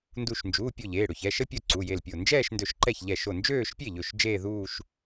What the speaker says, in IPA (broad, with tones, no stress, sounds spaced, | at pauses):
n d u˧˩ ʃ n d͡ʒ uː˩˧˩ pʲ o˥˩ ʎ eː˩˧˩ ɽ ɵ˧˩ ç ɛ˩˧˩ ʃ ə˥˧ pʲ o˥˩ ǀ u˩˧˩ j e˧˩ l pʲ o˧˩ n d͡ʒ ɛː˥˧ ʃ n d ɵ˧˩ ʃ ǃ ɛ˥˩ ç ʎ ɛ˥˩ ʃ o˥˩ n d͡ʒ øː˥˧ ʃ pʲ e˥˩ ʎ ɵ˧˩ ʃ d͡ʒ eː˥˧ ð uː˥˧ ʃ